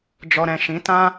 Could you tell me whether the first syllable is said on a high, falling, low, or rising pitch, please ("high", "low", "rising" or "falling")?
low